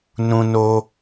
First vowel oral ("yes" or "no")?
no